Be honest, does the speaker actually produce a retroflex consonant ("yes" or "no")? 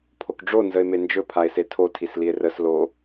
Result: yes